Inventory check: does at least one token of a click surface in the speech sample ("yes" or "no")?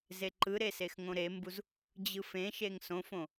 yes